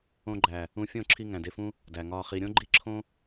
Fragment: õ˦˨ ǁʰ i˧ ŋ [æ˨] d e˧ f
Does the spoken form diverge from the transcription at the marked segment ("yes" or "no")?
yes